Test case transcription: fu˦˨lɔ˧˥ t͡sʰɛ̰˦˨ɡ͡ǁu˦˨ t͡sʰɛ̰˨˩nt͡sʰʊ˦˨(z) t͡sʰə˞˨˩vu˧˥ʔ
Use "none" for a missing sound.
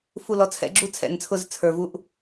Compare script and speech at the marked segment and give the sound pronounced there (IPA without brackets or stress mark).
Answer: z